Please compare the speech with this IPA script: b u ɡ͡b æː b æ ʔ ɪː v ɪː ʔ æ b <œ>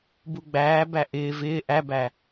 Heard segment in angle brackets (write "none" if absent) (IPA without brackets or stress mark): æ